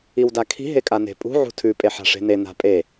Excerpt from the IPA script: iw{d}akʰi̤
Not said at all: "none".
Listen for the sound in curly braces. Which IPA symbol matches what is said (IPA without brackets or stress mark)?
d